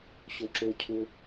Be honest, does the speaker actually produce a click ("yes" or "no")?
yes